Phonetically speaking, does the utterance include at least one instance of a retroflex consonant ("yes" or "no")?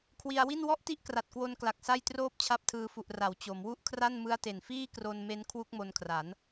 no